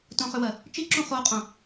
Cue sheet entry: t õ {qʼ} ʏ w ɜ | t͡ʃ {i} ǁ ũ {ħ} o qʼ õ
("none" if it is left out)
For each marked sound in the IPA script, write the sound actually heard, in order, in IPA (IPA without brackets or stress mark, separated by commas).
χ, i, χ